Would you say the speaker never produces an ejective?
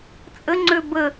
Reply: no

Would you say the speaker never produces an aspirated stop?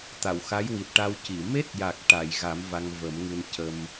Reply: yes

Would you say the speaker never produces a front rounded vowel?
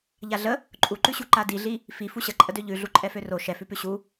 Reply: no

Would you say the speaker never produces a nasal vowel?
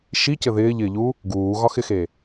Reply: yes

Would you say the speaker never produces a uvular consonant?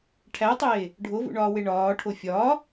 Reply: yes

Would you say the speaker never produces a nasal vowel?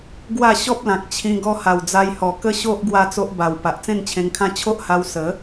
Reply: no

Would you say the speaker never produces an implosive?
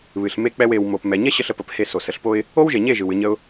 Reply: yes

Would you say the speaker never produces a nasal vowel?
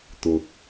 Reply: yes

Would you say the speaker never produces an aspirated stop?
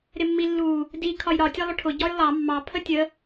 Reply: no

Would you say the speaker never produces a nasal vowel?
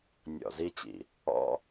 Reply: yes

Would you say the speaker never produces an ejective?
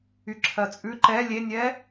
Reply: no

